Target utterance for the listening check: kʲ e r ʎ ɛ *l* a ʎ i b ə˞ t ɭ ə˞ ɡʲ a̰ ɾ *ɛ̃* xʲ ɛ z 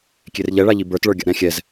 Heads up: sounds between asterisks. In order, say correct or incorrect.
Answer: incorrect: ɭ, correct

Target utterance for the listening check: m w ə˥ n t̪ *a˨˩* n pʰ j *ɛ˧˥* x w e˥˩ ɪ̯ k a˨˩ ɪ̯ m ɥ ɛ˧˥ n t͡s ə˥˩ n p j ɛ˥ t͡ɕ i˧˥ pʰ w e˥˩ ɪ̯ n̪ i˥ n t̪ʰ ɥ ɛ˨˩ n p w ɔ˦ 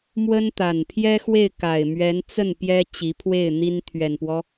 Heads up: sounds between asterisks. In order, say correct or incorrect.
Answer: correct, incorrect: ɛ˥

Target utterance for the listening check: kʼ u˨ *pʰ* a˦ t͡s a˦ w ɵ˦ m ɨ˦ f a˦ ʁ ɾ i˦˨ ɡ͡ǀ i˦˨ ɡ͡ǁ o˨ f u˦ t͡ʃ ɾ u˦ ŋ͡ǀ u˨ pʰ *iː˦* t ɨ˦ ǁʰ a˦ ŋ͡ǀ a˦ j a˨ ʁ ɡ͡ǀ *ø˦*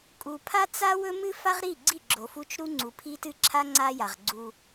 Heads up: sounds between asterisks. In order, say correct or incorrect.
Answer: correct, incorrect: i˦, incorrect: u˦

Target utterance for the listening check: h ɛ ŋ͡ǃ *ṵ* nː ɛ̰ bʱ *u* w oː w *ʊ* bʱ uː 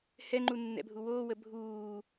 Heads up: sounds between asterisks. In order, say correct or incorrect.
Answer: incorrect: u, correct, incorrect: ə

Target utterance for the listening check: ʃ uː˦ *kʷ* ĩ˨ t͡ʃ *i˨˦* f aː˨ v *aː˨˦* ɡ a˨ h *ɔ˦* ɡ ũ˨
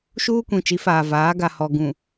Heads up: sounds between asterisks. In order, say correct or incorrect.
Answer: correct, correct, correct, incorrect: ɔ˨

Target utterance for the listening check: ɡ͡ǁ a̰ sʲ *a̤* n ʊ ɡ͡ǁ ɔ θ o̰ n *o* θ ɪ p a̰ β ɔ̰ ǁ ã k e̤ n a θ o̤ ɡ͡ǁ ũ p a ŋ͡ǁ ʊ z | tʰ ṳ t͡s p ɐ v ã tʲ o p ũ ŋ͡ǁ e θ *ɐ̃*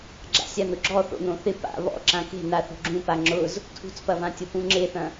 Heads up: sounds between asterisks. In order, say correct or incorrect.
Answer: incorrect: a, incorrect: õ, correct

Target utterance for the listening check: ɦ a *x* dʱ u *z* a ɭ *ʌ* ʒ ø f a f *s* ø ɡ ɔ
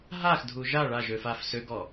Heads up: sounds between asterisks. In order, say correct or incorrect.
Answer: correct, incorrect: ʒ, incorrect: a, correct

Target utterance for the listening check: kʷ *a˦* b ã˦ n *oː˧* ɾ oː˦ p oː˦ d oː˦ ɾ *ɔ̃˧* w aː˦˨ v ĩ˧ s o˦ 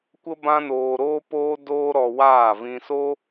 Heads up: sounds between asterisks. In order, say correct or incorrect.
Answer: incorrect: ə˦, correct, incorrect: ɔ˧

